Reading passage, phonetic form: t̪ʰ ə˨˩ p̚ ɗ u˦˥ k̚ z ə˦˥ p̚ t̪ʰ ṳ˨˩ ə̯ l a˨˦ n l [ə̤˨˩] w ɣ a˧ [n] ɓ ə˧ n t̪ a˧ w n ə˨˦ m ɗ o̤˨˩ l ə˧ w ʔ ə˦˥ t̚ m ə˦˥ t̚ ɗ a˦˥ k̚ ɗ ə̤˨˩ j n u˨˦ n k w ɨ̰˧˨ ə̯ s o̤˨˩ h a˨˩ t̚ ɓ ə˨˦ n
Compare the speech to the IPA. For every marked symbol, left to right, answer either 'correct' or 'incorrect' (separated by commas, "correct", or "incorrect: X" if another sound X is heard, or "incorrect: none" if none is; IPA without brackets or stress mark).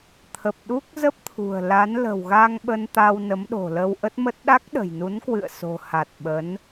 correct, incorrect: ŋ